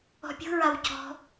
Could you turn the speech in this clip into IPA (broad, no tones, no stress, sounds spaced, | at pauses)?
ɔ̤ pʲ ṳ ɹ a w c ɔ̤